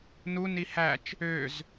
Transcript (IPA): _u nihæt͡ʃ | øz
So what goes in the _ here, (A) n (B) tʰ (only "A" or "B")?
A